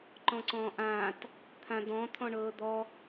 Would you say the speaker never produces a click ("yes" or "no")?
no